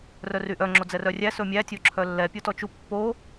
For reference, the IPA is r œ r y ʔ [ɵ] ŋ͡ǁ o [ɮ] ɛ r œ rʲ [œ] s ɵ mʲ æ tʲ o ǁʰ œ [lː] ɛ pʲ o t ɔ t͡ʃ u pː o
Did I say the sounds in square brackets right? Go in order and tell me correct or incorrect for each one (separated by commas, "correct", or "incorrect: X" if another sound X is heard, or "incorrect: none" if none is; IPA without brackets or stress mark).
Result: incorrect: œ, incorrect: d͡z, incorrect: æ, correct